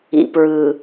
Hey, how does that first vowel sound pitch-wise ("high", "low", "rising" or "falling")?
low